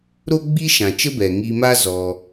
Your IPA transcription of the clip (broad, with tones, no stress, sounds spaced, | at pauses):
ɾ o˦ ɡ͡b i˦ ʃ ã˨ t͡ʃ ə˦ b ɛ˨ ŋ i˧ m a˦ z ɔ˧